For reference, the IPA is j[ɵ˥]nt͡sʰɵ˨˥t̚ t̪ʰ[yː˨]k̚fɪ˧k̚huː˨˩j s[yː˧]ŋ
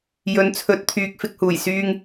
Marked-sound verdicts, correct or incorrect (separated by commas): incorrect, correct, correct